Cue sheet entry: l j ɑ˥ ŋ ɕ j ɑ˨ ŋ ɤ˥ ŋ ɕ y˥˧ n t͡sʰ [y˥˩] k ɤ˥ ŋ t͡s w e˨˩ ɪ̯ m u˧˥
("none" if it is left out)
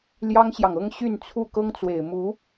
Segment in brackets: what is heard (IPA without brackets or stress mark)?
u˥˩